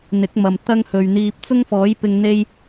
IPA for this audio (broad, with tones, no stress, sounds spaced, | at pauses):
n̪ ɪ˨˥ k̚ m ɐ˨ m t̪ ɐ˥ ŋ h ɵ˨ ɥ n̪ iː˧ p̚ t͡s ʊ˥ ŋ f ɔː˨˥ j p ɪ˧ ŋ n̪ e˥ j